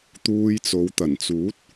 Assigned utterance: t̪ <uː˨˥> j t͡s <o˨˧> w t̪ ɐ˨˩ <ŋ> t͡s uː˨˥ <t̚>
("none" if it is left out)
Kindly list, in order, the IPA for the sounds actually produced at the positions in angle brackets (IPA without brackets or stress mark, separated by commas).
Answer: uː˧, o˨˧, n, t̚